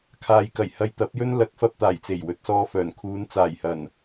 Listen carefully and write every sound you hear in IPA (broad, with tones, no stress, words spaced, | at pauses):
kʰaː˨jkɐ˨˩j hɐ˧jt̪ɐ˨˥p̚jɵ˥n lɐ˨˥k̚fɐ˧p̚t̪aː˨˩j t͡se˨˩jwɵ˨t̚sɔː˧fœː˨˩n kʰuː˨˧nt͡saː˨˩jhɐ˨˩n